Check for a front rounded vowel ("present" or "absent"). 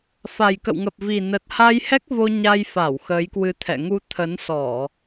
absent